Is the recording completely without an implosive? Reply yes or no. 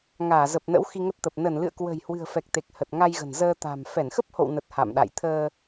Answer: no